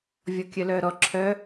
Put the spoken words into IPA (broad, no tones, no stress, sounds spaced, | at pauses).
vʲ ɔ kʲ œ l œ ɾ ɔ ǁʰ œ